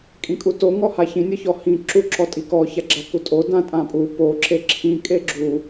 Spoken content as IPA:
kʼ ĩ kʼ u t o ŋ ɔ h a ç ĩ nʲ ɯ ç ɔ h ĩ ǁ u ǁ ɔ tʼ i k ɔ ç a ɡ͡ǁ a k u tʼ o d ã tʼ ã pʼ u p o ǁ e ǁʰ ĩ kʼ e ɡ͡ǁ u

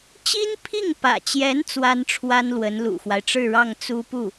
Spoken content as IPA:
t͡ɕ i˥ n pʰ i˥˩ ŋ p ä̰˨˩ t͡ɕ j ɛ˧˥ n t͡s w a˥ n ʈ͡ʂʰ w a˥ n l w ə˧˥ n l ṵ˨˩ x w a˦ ɪ̯ ʈ͡ʂ ɻ̩˥˧ ɻ ɑ˥˩ ŋ t͡s u˥ p u˥˩

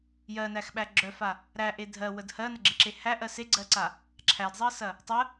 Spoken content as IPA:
j ɜ n æ x ɓ æ ɡ͡ǁ œ f a | ɾ æ ʔ e dʱ ɜ w ə d h ɜ n ə ɡ͡ǁ e ǁ e h æ ʔ ɜ s e ɡ͡ǀ ɜ ǀ a | ǁʰ æ d zˤ ɜ s ɐ | tˤ ə

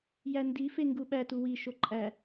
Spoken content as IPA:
j æ n d i f e ŋ ɡ u ɓ æ t u w i ʃ o ǃʼ æ

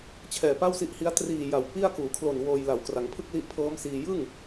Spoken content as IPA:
t͡ɕʰ ɛː˨˩ p a˥˩ w s i˦˥ ʔ h i˦˥ a̯ t r iː˨˩ j a˨˩ w p i˥˩ a̯ k uː˩˦ kʰ l o˨˩ n w oː˧ j l a˩˦ w k r a˩˦ ŋ pʰ ɯ˥˩ k̚ l i˦˥ ʔ pʰ ɤː˦˥ m s iː˧ j ɯ˥˩ ŋ

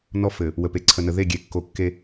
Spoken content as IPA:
n ɔ˦ f ɘ˨ | w ə˨ p e˨ ǀʰ ə˨ n ə˨ ð e˦˨ ɡʲ e˨ kː o˨ kː e˦

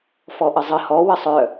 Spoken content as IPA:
f ɔ ʔ ə zˤ ə h ɔ w ə sˤ œ

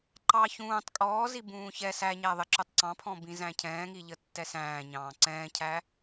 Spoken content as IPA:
ǃ ɑ ç ũː tˤ kʼ ɔː z i b ũː ç ɛ s æ ɲ æ ðˤ ɪ ǁ ʊ tˤ ǀ ɑ̃ pʰ ɔ̃ b ĩ z æ̃ cʰ ɛ̃ː ŋ i ʎ ə tː ɛ s æ̃ː ɲ ɑ̃ː ǀ ɛ̃ː cʰ æ

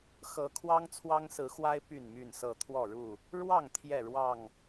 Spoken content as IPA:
x ɤ˨˦ kʰ w ɑ˦ ŋ t͡sʰ w ɑ˦ ŋ s ɹ̩˨˦ x w a˦ ɪ̯ p y˥˨ n m y˥˨ n s ɤ˥˨ t̪ʰ w ɔ˥˨ ɻ u˥˨ | ɻ w ɑ˥˨ ŋ t̪ʰ j ɛ˥˨ ɻ w ɑ˥˨ ŋ

